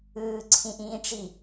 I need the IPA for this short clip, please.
ɯː ǀʰ ĩ ʔ ĩː ʈ͡ʂ i

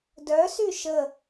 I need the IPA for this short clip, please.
d œ s y ʃ ə

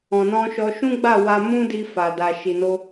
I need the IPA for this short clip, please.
ɔ̃˨ n ɔ̃˧ ʃ ɔ˧ ʃ ũ˦ ɡ͡b a˦˨ w a˧ m ũ˦ d i˧ f a˨ d a˨ ʃ i˨ n o˧

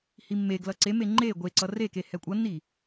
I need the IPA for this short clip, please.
h i mː e ɡ l ʌ ǀ e m e ŋ͡ǃ e ɡʷ e ǀ ʌ r e k e h ɛ kʷʼ ʌ nː i

